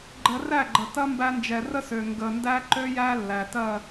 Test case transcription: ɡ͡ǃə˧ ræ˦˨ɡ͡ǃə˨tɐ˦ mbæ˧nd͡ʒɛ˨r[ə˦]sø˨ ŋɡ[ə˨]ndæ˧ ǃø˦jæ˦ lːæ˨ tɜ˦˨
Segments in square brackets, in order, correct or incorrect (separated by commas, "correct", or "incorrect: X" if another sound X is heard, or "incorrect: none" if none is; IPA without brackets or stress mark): correct, correct